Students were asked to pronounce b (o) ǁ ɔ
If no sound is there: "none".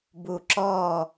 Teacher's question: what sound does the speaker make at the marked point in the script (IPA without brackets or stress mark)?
u